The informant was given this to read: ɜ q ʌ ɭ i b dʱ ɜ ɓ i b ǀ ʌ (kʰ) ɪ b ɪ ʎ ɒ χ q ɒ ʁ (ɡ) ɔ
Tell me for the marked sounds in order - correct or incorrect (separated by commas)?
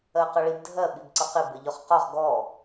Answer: incorrect, correct